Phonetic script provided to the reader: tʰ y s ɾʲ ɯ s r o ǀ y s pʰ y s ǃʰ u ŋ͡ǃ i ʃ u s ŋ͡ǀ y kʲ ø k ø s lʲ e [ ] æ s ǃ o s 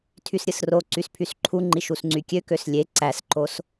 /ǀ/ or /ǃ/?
ǀ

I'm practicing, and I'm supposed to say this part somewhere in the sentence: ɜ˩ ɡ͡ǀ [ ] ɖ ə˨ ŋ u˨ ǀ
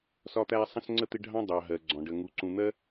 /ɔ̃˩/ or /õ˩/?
ɔ̃˩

